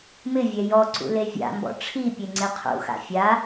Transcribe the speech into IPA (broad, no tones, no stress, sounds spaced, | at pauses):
m ɪ vʲ ɛ j ɔ ǀ ṵ l e vʲ a̰ m b ɔ̰ ʈ͡ʂʰ i pʲ e ŋ͡ǀ e qʰ ṵ x a̰ fʲ a